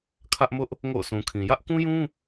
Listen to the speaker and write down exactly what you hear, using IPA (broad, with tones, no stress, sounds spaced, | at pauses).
kʰ ä˦ ʔ m ʊ˦ ʔ | ŋ o̰˦˨ ʊ̯ s ũ˨ kʰ ĩ˨ j ä˦ ʔ k ũ˦ j ũ˦